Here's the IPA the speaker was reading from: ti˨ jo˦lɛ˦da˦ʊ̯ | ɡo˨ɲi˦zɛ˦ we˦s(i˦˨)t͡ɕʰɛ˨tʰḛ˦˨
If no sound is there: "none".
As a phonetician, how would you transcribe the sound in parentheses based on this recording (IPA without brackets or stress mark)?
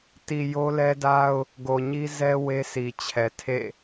i˨